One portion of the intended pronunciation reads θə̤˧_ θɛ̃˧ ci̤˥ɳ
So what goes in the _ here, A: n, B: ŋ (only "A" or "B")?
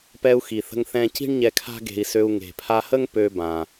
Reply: B